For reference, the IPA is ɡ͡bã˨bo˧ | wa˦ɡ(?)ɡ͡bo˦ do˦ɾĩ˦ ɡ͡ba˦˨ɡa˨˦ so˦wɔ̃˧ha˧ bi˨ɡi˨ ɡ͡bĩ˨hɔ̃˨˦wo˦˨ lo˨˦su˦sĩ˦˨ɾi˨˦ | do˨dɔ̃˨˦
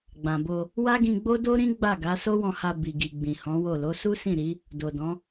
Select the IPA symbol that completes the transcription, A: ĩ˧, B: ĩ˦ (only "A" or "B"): A